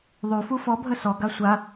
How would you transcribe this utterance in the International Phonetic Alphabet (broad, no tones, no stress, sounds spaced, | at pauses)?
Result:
ðˤ y f u f ɔ bʱ ə s ɔ ɡ a sʷ a